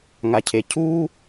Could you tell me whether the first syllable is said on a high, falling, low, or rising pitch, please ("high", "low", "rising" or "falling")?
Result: low